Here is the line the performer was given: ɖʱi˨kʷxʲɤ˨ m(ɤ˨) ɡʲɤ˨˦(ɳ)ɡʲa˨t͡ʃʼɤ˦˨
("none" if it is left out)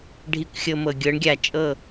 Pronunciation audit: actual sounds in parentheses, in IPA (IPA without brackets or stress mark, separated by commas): ɤ˨, ɳ